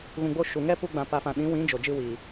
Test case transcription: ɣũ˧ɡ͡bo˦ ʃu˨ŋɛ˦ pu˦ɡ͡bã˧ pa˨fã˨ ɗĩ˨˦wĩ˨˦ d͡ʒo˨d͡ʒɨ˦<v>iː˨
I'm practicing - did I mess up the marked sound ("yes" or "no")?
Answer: yes